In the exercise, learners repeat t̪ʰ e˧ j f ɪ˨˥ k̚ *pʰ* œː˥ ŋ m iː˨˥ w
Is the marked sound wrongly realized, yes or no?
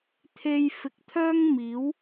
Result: yes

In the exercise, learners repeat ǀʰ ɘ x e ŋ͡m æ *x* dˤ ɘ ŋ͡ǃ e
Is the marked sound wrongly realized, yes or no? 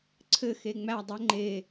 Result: yes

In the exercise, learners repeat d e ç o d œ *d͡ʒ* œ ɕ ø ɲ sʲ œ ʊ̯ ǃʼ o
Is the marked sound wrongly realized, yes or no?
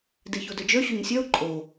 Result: no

